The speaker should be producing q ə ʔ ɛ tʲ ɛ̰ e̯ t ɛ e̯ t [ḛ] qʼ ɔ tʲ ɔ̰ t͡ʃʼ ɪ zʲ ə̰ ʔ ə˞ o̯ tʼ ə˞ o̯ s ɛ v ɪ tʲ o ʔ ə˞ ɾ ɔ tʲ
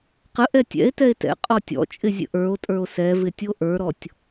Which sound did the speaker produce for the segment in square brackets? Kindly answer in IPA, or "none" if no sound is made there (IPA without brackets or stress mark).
ɛ̰